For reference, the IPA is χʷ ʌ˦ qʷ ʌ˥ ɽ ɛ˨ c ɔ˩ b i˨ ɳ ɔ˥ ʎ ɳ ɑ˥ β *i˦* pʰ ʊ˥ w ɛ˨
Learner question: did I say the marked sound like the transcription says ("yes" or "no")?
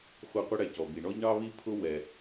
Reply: no